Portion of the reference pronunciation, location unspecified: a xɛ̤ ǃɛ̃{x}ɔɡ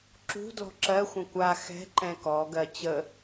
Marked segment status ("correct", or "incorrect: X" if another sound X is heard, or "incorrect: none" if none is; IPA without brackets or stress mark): incorrect: k